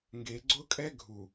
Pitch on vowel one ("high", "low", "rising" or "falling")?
low